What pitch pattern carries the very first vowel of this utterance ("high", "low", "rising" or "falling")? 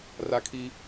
high